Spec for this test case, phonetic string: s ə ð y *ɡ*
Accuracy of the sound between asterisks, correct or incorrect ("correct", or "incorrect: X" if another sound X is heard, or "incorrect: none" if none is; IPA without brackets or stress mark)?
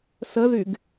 correct